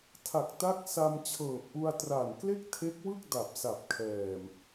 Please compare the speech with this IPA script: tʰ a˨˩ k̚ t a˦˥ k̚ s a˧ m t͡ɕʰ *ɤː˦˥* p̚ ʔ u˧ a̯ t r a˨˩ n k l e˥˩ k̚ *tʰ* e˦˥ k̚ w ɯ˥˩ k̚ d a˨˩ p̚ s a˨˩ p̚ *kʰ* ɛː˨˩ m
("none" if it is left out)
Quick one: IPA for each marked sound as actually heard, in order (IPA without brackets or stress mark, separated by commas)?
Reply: ɤː˨˩, tʰ, kʰ